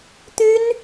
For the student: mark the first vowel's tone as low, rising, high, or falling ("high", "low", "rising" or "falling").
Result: high